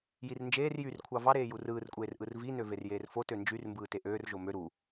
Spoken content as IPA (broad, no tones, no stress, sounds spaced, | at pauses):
j i r n d͡ʒ eː r j y r kʷʰ ɑ v ɑ ɾ eː j u r ɯː r kʷʼ eː r ʔ ɯ r v i n ø v e r j eː r f o t ø n d͡ʒ y r m b ɯː t e ʔ øː r ʒ o m ø ɾ u